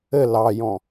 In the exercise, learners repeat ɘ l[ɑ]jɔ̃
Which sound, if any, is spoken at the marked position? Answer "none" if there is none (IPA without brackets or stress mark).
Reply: ɑ